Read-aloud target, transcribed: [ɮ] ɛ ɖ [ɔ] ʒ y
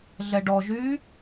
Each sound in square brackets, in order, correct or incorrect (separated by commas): correct, correct